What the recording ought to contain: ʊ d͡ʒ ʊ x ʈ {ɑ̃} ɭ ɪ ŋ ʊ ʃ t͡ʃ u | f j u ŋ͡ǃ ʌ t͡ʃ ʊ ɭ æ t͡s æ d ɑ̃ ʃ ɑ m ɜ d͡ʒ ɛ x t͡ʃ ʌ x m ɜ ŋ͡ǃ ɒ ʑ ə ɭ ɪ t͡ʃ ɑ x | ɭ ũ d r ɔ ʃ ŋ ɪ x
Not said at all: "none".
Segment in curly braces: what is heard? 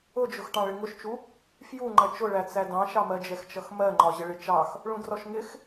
ɑ̃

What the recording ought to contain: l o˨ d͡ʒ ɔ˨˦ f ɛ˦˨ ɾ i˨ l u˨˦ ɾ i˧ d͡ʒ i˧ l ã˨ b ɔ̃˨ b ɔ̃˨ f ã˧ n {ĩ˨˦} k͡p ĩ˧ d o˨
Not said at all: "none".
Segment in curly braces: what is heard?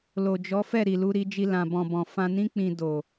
ĩ˦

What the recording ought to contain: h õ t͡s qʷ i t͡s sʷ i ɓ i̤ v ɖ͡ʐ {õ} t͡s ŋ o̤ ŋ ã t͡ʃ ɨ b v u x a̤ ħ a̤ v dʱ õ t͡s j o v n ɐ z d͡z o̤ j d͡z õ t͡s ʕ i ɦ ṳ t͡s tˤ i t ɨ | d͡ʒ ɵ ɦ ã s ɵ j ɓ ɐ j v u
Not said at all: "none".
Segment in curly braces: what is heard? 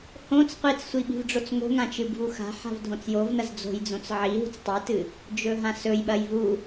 o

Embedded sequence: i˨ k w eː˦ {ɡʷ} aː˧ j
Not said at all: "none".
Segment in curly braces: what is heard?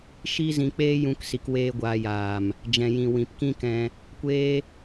ɡʷ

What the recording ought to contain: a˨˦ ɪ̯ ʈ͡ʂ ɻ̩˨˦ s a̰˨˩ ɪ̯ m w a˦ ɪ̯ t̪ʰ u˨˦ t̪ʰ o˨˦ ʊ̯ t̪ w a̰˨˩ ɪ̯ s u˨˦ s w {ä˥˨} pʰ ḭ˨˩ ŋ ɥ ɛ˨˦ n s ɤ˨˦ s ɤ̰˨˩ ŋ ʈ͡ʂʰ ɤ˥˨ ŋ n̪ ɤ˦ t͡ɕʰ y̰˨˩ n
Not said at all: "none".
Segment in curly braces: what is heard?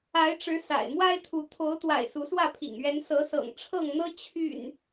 ä˥˨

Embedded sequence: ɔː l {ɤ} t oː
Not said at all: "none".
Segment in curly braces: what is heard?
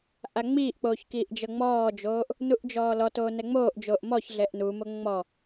ɔ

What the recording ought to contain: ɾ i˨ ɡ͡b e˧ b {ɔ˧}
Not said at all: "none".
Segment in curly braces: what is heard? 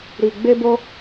o˧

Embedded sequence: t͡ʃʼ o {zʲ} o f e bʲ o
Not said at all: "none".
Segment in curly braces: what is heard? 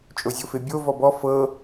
zʲ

